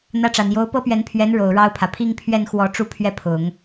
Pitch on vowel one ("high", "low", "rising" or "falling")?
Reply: falling